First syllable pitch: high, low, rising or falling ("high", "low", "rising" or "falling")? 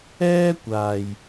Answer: high